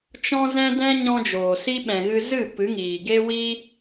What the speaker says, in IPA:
t͡ʃ ɔ̃˦ z ɛ̃˦ d ɛ̃˦ ɲ ɔ̃˦ d͡ʒ oː˨ s i˦ ɓ ɛ̃˨ ɣ ɨ˧ z ɨ˦˨ p ɨ˨˦ ŋ iː˨ ɡ e˦ w i˦

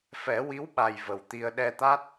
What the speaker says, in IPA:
f ɛ˨˩˦ w i˧˥ w ɓ a˨˩ j v ə˨˩ w t̪ i˧ ə̯ ɗ ɛ˧ t̪ a˦˥ t̚

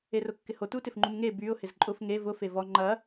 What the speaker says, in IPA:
e r ʊ kː ɪ h o t u t ɪ f ŋ͡ǃ u m ŋ e b y ʊ̯ h ɪ z ǃʼ ʊ f ŋ e v ʊ f e v ɔ ŋ͡ǃ ɐ

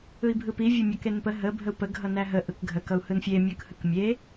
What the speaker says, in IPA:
ɯ i̯ bʱ ɯ p i vʲ ʊ mʲ ʌ k e n p ə ɦ ə bʱ ə u̯ p ə ɡʱ ʌ n æ ɦ ə ʔ ɯ k ɡʱ ə k ʌ u̯ h ɯ n fʲ e mʲ ɯ k h ɯ k mʲ e

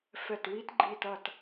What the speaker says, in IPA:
f ɛ˧˩ t w i˦˥ t ɡ͡ǃ i˧˩ t ɐ˧˩ t

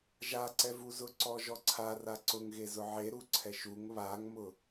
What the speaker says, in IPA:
ʒ a ǀ ɛ v u z ʊ ǀ ɔ ʒ ɔ ǀʰ a r a ǀ ʊ ŋ ɣ e z ʊ ʕ e ɾ u ǀʰ ɛ ʃ u ŋ β a ŋ m ʊ

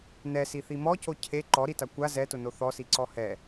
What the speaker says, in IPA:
n ɛ s i θ i m ɔ c o cʰ e ǃ ɔ ɾ i t a kʷ a z ɛ t ʊ n o θ ɔ s i ǀ ɔ h ɛ

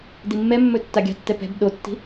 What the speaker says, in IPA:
d i mː ɛ mː ɵ tː a ɡʲ a̤ tː ɛ p ɛ̤ b ɗ o tː i̤

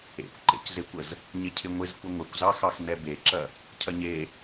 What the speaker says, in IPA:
ḛ kʷ ǃ ḛ c z e kʷ ə z | ɲ ɪ cʰ ɪ ŋʷ ɪ z kʷ ɪ ŋʷ ɪ kʷ z ɑ x ɑ x n ɛ b e ǁ ɐ | cʰ ɐ ɲ e

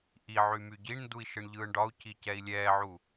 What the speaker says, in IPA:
ʔ i ʕ y m y ɟ i ɳ n d u i̯ ʃ ɯ ɳ ʎ ɯː ɳ ɖ ɒ u̯ c i c ɛ i̯ lʲ ɛː ʕ u

